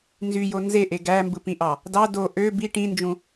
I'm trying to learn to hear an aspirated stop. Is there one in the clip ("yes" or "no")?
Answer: no